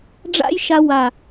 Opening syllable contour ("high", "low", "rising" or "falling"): high